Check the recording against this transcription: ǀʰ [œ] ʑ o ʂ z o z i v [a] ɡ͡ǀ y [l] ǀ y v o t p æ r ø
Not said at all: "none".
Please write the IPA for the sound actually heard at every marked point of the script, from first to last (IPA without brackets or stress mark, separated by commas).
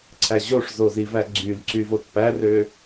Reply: æ, æ, l